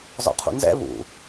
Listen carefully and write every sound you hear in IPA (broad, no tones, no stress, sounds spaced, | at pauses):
z ɔ̰ qʰ ṵ n z ɛ̰ β ṵ